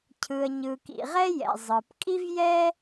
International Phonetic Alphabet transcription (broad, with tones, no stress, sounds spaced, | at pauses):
cʰ ɯ˩ ə̯ ɲ ɯ˩ k ḭ˩ ʁ ɛ˥ j ɛ̰˩ zˤ ɯ˩ p kʼ i˥ v j ɛ˥